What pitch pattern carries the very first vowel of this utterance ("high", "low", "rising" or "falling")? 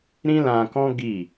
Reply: high